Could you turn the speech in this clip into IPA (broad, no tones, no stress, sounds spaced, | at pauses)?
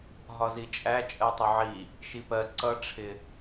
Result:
ɦ ɒ z i t͡ʃʼ æ t͡ʃʼ ɜ tˤ ʊ ʕ i | ʃ i p ɜ ǀ ʌ ʈ͡ʂʰ ɪ